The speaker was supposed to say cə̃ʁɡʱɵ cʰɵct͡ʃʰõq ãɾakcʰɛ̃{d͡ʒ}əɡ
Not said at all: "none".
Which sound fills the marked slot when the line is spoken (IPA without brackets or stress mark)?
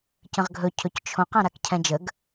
d͡ʒ